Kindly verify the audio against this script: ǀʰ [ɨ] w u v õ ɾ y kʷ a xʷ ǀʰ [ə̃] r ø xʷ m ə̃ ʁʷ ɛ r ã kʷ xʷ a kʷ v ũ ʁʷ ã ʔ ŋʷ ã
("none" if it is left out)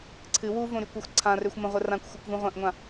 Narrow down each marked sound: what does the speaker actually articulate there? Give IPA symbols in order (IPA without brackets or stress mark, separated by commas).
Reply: ɨ, ã